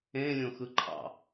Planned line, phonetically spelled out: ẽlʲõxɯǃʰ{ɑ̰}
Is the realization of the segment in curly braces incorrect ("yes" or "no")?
no